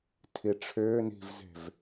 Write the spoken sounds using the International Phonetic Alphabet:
tʰ i ʈ͡ʂʰ ʏː n i̤ v z e̤ v

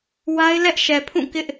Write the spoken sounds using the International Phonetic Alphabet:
w a˦ ɪ̯ l ɛ˦ ʔ ʃ ɛ˨ pʰ ũ˦˨ k ɪ˦ ʔ

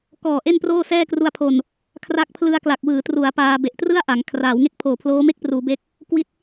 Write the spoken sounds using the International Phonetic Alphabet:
k ɔː˨˩ ʔ e˥˩ n p r oː˥˩ s ɛː˥˩ k r u˧ a̯ pʰ o˨˩ n | kʰ r a˦˥ k̚ pʰ l ɯ˧ a̯ k l a˨˩ k̚ w ɯː˩˦ t r u˩˦ a̯ p aː˧ b e˨˩ ʔ t r ɯ˥˩ a̯ ʔ a˩˦ ŋ kʰ r aː˩˦ w ŋ e˥˩ k̚ pʰ oː˨˩ pʰ l oː˦˥ m e˥˩ k̚ p r uː˩˦ b e˦˥ k̚ | k w i˦˥ t̚

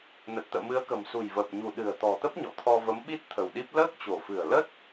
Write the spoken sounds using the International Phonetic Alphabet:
n ə˨˩ t̚ t̪ ə̰ː˧˨ m ɨ˨˦ ə̯ k ə̤˨˩ m s ṳ˨˩ j v əː˨˩ p̚ ɲ ṳ˨˩ ɗ ɨ̤˨˩ ə̯ t̪ ɔ̤˨˩ t̪ ə˦˥ p̚ ɲ ɔ̰˧˨ t̪ʰ ɔ˧ v ə˨˦ m ɓ i˦˥ t̚ t̪ʰ ə̤˨˩ w ɗ i˦˥ p̚ l əː˦˥ k̚ t͡ɕ o̤˨˩ f ɨ̤˨˩ ə̯ l ə˦˥ t̚

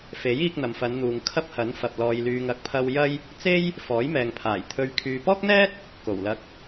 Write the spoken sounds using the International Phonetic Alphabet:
f e˨˥ j iː˧ k̚ n̪ ɐ˨ m f ɐ˨˧ n n̪ uː˨ ŋ kʰ ɐ˥ p̚ h ɐ˨˥ n f ɐ˨ p̚ l ɔː˨ j l yː˨ ŋ ɐ˨˥ k̚ pʰ ɐ˧ w j ɐ˥ j | t͡s e˥ j | f ɔː˨˥ j m ɛː˨ ŋ pʰ aː˨˩ j t̪ʰ ɵ˨ ɥ kʰ yː˨ p ɔː˥ k̚ n̪ ɛː˥ t̚ | k o˨˩ w l ɐ˧ k̚

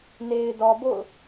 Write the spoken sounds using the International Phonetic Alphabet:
n e˨ ɪ̯ d ɔ˨ b o̰˦˨ ʊ̯

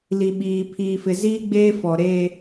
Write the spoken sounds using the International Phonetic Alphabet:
l i˨ ɓ iː˨ pʰ iː˨ f ɪ˨ z iː˦ ɡ͡b eː˦ f ɔ˨ ɾ eː˦

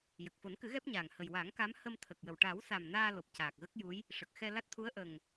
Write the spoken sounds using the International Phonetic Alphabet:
j ə˨˩ k̚ f o˨˩˦ n k ɨ˨˩˦ ɣ ɛ˦˥ p̚ ɲ aː˨˩ ŋ h ə˨˩ j w a˨˩˦ ŋ k a˧˥ m h ə˧ m t̪ʰ ə˨˩ k̚ j ə˨˩ w ʈ a˨˩˦ w s a˨˩ m n aː˧ l o˨˩ p̚ c aː˨˩ k̚ ɣ ə˦˥ k̚ j u˧˥ j | ʂ ə˨˩ k̚ x ɛ˧ l a˦˥ t̚ t̪ʰ u˧˥ ə̯ ʔ ə˨˩ ŋ

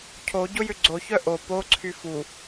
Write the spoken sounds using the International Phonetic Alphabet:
cʰ o ɟ ʊ j ʏ ɡ͡ǀ o ç œ ʔ o p o ǀʰ y f u

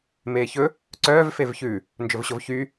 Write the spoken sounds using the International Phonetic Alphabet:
m eː ç ɵ | ǀ œː v f e v ç ʉ | n d͡ʒ ɵ v ɕ o v ç y

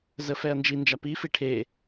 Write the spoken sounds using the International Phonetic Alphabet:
z ə f ɛ ɐ̯ n d͡ʒ i n d͡ʒ a p i f i ʈʰ e

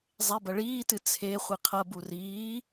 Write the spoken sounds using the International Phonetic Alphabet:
zˤ e b ɐ ɭ iː t ɨ t͡sʰ e χʷ i qʰ ɐ b u r iː

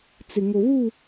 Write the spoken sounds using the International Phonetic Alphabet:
t͡s ɪ˨ ŋ o˨ β u˦˨

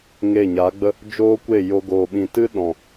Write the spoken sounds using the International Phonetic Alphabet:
ŋ e˦˨ ɲ a˨˦ ɡ͡b ə˦ | d͡ʒ oː˦ kʷ e˦˨ j o˧ ɡ oː˨ ɓ ĩ˨ t ɨ˦ ɗ ɔ̃˨

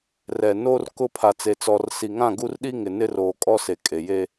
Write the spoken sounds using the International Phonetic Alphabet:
r ɛ˨ n oː˦ r k ʊ˦ pʰ a˨ t͡s e˨ t͡s ɔ˨ r s i˨ ŋ ã˦˨ ɡ u˦ r ɗ i˦ ŋ ɪ˨ n ɪ˦ r oː˨ kʼ ɔ˦ s e˨ kʼ e˨ j e˦

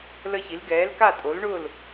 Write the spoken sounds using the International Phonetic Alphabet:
l ə˥˨ ç i˨˥ l ɡ ɛː˨˥ l k a˥˨ tʼ o˨˥ l ɳ ʊː˥˨ l

